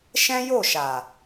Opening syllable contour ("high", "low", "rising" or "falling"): high